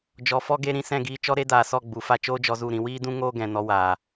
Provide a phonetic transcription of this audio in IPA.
d͡ʒɔ˨fɔ˧ɡe˧ ɾĩ˧ sɛ̃˦˨ɡiː˦ t͡ʃɔ˦ ɾe˦daː˨sɔ˦˨ ɡ͡bu˨fa˦ t͡ʃoː˦d͡ʒɔ˧zu˦˨ɾĩ˧ wiː˦dũ˦ ŋoː˦ɡɛ̃˨ nɔ˦ waː˨

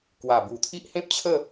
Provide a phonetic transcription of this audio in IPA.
kwa˨˩bu˨˩t̪ʰi˦ʔ hẽ˦p̚t͡ɕʰə˥˧

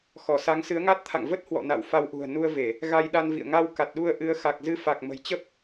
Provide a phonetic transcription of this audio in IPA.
xɔ˧˩sa˨˦ŋ sɨ˨˦ə̯ŋa˦˥t̚t̪ʰa̰˧˨ŋ və˦˥t̚ hwɔ̰˧˨ na̰˧˨wfa˧wʔṳ˨˩ə̯ nu˧ə̯ve˧˩˨ | ɣa˧jɗa˧nvḭ˧˨ə̯ ŋa˧w ka˨˩t̚ɗu˧ə̯ʔɨ˨˦ə̯ xa˨˩k̚zɨ˧ fa˨˩k̚mə̤˨˩jt͡ɕə˦˥p̚

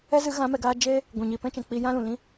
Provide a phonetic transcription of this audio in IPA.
ɛ˦zɨ˨˦ ɣã˨˦mɛ˨ɡaː˧ d͡ʒeː˦ | ɡʷɛ̃˨ɲiː˨pɛ̃˦t͡ʃɛ̃˨ k͡pi˧jã˦lũ˨lĩ˦

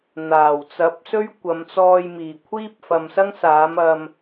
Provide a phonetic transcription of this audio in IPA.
n̪aː˨˩wt͡sɐ˨˥p̚ sɵ˥ɥ kʷɐ˨˧mt͡sɔː˧jmiː˨˩ kʷʰiː˥p̚fɐ˨msɐ˥ŋ saː˨˥mɐ˧m

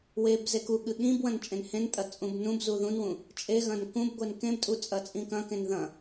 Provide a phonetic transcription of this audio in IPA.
web zekuɠɨ ɠĩbwɐ̃n t͡ʃʼẽnhẽntʼɐ t͡sʼũbnũbzu ðũnwũ | t͡ʃʼeɣɐ̃n kũbɡʷen kẽbtʼu t͡sʼɐt͡sʼĩkɐ̃kẽn ðɐ̃

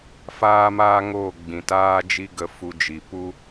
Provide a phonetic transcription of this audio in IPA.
faː˦ maː˦ŋoː˦˨ ɡ͡bĩ˨ taː˦d͡ʒi˦ ɡə˧fu˧d͡ʒi˨pu˦

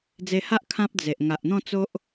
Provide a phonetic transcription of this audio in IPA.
d͡ze˧ha˦ʔ kʰã˦p̚d͡ze˨ʔ ŋa˨ʔn̪ɔ̃˥˧t͡so˦ʔ

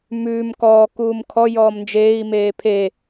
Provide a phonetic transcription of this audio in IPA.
mʉːm kɔː kuːmkʰɔ jɔːmnd͡ʒeːi̯ meːpʰe

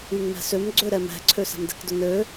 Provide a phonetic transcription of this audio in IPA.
yŋmɛ̤søm ɡ͡ǀøɾɛmɛ̤ǀʰø sa̤mdɛ̤kdʊnø

